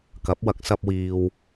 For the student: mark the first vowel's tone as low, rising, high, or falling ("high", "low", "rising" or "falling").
rising